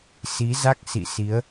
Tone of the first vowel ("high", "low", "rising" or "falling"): rising